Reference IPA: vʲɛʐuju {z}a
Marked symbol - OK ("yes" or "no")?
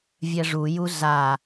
yes